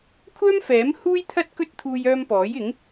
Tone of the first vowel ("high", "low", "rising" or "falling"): high